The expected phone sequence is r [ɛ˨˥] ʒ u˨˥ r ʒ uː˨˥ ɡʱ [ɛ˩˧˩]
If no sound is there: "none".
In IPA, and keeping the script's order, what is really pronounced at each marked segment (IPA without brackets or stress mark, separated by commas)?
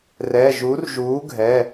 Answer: ɛ˩˧˩, ɛ˩˧˩